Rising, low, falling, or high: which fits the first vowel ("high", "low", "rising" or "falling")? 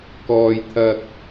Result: low